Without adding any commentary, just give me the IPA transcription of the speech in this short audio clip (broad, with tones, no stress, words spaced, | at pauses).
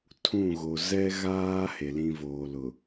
tʰũ˦˨ɣo˨ zɛ˦ɣaː˦ he˨lĩ˦ voː˨lʊ˨